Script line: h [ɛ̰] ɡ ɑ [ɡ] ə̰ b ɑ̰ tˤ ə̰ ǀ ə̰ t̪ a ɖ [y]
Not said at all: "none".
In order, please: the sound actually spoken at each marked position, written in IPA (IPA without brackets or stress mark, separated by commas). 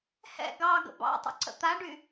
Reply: ɛ̰, ɡ, y